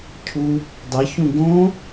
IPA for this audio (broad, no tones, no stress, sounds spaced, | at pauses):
cʰ u | dˤ ɐ ç ũ ɡ õ